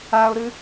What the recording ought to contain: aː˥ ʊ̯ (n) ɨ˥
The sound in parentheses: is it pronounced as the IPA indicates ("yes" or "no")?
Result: no